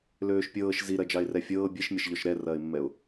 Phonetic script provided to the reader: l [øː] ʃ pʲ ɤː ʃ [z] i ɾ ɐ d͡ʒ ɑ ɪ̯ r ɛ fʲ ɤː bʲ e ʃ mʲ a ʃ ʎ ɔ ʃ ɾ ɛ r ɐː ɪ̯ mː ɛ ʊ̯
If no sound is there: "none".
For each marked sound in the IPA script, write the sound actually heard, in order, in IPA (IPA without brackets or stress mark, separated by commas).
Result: øː, z